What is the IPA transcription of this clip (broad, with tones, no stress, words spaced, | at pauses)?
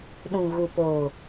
ɗũ˨ɣu˨poː˨